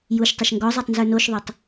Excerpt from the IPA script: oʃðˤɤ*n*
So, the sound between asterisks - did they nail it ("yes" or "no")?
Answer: no